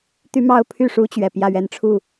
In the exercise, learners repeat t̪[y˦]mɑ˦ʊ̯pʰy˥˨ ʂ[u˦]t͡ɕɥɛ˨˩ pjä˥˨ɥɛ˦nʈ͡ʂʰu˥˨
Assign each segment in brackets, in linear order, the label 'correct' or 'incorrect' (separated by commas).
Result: correct, correct